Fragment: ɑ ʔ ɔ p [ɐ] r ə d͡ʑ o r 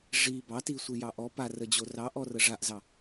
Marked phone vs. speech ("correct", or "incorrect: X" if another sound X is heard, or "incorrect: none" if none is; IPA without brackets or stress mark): incorrect: a